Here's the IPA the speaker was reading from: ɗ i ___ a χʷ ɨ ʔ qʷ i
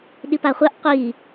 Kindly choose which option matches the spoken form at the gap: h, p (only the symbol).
p